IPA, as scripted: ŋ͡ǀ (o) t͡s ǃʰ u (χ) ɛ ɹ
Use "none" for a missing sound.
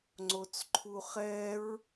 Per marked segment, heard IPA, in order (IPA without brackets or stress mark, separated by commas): o, χ